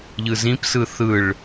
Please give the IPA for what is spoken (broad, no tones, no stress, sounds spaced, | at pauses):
ʎ ɯ z ĩ p s ɯ θ ɯ ɭ